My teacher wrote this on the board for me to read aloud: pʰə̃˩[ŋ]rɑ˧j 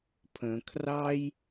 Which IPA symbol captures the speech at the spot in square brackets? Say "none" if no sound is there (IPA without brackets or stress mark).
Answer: kʰ